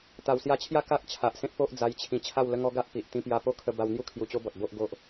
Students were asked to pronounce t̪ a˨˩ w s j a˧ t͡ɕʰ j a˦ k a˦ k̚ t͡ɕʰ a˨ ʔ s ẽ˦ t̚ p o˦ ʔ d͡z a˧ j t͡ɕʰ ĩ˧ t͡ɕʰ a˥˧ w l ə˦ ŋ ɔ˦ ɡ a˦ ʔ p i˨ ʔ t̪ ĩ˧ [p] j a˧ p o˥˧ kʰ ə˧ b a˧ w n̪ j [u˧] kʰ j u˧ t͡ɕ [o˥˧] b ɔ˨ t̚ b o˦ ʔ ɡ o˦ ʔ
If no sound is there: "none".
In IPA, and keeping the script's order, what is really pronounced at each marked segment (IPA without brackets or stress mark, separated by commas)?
p, u˦, o˦